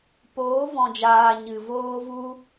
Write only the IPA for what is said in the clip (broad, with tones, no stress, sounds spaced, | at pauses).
p oː˨˦ v ɔ̃˨ d͡ʒ aː˨ ɲ ɨ˨ v oː˦ v u˦